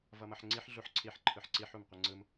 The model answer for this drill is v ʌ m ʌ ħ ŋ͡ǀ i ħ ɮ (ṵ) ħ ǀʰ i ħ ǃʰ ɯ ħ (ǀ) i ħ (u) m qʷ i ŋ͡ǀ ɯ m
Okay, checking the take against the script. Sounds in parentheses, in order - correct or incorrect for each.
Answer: incorrect: u, correct, correct

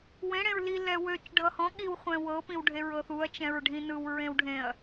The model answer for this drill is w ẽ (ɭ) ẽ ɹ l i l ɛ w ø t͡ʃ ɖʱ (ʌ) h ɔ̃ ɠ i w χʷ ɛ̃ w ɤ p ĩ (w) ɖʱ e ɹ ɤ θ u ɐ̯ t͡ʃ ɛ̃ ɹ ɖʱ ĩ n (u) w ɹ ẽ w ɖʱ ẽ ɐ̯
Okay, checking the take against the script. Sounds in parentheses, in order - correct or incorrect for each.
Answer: incorrect: ɽ, correct, correct, incorrect: ɯ

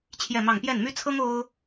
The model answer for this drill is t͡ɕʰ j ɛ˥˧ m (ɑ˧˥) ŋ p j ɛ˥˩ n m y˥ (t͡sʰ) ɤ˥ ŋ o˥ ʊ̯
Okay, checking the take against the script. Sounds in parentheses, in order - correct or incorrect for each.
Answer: incorrect: ɑ˥˧, correct

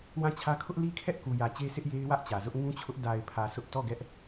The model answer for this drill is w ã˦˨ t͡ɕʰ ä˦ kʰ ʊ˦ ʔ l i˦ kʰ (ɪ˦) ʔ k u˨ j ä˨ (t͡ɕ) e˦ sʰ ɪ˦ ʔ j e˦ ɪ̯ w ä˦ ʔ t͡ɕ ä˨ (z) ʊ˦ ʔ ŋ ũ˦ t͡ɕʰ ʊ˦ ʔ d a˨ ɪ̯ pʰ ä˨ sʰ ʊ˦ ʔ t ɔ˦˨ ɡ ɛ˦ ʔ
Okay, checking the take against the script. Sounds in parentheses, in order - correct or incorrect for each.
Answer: incorrect: ɛ˦, correct, correct

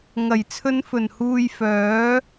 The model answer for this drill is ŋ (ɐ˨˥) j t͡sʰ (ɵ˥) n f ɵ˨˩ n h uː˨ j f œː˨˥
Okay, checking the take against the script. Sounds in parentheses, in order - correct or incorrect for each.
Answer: incorrect: ɐ˨˩, incorrect: ɵ˨˧

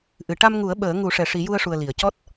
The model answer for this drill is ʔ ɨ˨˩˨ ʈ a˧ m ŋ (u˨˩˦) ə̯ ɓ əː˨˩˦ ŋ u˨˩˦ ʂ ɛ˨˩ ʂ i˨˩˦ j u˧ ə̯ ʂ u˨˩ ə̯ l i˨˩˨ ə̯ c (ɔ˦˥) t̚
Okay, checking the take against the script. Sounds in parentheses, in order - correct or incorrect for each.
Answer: correct, correct

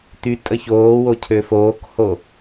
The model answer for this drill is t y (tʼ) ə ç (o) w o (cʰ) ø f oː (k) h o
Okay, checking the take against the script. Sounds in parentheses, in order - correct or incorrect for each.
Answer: correct, incorrect: oː, correct, correct

